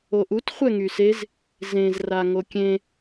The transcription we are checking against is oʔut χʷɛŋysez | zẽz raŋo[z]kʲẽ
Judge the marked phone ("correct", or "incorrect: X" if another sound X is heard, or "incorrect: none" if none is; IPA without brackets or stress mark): incorrect: none